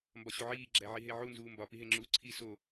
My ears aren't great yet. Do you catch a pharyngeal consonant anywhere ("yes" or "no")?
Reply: yes